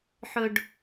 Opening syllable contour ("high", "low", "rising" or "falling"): low